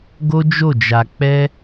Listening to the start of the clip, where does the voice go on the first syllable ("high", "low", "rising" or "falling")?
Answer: high